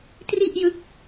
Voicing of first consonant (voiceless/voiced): voiceless